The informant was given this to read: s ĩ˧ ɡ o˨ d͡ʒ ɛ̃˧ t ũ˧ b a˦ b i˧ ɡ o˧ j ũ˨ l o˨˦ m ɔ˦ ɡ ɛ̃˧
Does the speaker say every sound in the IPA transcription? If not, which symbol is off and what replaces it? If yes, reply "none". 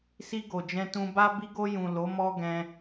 ĩ˧ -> i˧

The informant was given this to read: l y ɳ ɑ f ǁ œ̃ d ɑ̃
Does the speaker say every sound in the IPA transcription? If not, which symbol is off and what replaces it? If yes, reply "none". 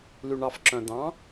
none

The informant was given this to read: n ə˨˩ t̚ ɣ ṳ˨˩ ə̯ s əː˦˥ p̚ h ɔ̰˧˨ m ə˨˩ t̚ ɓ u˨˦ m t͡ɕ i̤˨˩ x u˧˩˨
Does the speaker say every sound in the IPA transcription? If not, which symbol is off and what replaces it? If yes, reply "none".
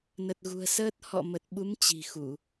p̚ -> t̚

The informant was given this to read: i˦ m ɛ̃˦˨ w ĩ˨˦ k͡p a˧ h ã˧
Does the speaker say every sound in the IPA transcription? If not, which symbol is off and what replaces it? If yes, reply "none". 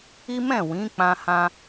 a˧ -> ã˧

